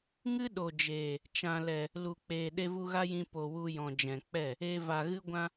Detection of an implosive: present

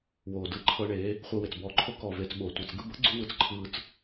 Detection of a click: present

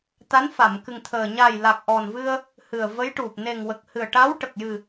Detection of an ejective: absent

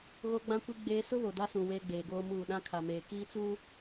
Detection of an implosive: present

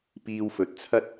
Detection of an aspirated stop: present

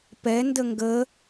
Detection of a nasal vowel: absent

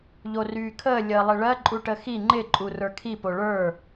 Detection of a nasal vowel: absent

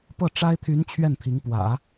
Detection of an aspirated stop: present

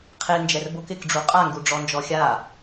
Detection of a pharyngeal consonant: absent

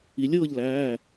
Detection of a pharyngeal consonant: absent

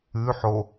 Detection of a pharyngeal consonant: present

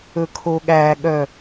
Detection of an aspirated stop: present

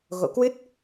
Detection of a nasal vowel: absent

